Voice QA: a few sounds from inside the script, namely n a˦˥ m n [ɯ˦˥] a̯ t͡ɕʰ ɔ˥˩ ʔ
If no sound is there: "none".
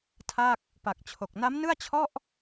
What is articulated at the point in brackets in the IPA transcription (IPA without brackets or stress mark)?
ɯ˥˩